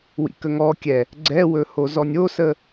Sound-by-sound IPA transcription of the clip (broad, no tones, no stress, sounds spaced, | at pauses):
w ḭ k ə ŋ ɔ kʲ ɛ | ɡ͡ǀ ɛ w ɵ h o z ɔ nʲ o s ə